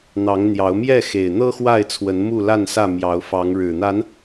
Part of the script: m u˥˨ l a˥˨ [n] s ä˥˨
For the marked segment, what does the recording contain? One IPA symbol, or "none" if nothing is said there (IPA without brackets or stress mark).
n